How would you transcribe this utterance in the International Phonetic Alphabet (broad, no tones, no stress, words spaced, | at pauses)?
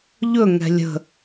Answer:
ʎɵŋɛ̤ lʲə̤